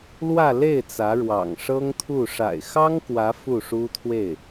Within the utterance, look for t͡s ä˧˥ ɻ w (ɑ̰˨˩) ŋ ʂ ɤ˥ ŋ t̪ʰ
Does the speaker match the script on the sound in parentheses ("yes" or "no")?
yes